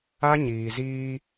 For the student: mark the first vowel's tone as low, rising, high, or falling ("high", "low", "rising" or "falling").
high